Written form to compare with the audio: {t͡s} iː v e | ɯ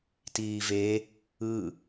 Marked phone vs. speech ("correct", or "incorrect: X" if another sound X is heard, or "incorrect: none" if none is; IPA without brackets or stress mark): incorrect: t